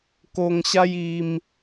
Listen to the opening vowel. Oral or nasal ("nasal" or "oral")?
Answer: oral